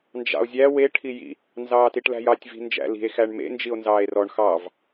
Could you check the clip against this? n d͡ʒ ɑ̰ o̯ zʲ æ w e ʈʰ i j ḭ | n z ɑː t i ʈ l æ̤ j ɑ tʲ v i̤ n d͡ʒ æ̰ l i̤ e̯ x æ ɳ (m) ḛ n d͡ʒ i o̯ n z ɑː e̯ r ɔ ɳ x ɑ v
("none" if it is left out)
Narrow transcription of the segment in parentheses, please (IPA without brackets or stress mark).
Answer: m